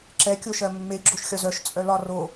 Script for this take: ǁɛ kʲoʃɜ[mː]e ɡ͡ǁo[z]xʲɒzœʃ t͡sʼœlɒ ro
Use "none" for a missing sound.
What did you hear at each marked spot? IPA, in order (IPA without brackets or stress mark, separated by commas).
mː, ʃ